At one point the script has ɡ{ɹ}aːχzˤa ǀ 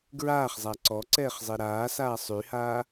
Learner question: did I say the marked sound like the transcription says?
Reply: yes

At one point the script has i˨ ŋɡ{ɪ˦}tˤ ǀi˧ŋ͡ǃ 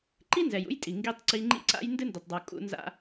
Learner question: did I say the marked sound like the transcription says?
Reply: no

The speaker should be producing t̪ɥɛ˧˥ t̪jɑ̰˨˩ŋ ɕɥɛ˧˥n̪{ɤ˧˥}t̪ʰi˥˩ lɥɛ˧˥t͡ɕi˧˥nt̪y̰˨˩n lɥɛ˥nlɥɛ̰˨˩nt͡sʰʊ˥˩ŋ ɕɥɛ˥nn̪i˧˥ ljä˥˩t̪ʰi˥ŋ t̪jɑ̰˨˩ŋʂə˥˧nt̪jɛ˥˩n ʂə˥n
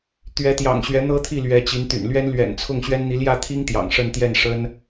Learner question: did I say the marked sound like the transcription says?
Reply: no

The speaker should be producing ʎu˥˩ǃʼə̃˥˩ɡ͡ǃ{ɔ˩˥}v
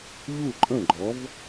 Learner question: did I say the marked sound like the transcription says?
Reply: yes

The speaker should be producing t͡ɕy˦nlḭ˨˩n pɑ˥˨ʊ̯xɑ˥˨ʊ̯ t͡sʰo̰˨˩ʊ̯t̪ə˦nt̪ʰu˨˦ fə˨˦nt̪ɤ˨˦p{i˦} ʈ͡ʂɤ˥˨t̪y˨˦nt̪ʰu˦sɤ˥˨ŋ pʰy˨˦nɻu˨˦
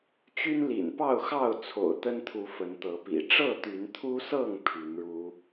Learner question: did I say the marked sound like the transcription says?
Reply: no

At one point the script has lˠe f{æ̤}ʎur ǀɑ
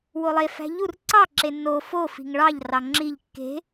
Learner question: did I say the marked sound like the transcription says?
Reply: yes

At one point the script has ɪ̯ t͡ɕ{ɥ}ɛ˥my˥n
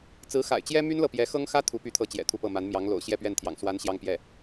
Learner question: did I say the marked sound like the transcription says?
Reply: no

